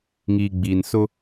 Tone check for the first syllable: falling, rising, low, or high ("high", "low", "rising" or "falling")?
low